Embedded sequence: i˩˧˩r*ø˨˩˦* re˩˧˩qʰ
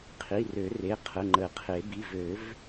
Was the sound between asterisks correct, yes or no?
yes